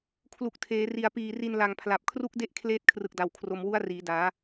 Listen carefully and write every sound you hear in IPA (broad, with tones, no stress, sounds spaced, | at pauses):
kʰ l u˨˩ k̚ tʰ eː˩˦ r i˨˩ a̯ p iː˨˩ r i˧ n l a˨˩ ŋ pʰ l a˨˩ p̚ kʰ r u˦˥ k̚ d e˦˥ ʔ kʰ l eː˦˥ t̚ kʰ r ɯ˨˩ k̚ d a˨˩ w kʰ r o˧ m w u˦˥ a̯ r iː˩˦ d aː˩˦